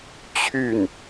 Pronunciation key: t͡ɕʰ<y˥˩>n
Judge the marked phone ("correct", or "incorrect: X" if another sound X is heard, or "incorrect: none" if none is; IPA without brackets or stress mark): correct